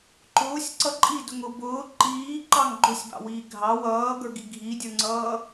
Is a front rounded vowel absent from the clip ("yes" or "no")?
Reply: yes